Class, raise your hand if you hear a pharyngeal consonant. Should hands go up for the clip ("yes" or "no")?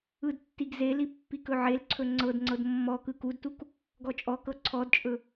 yes